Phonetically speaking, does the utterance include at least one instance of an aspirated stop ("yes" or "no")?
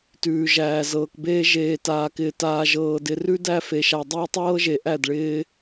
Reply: no